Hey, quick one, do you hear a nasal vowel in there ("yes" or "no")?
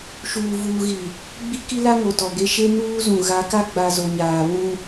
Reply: yes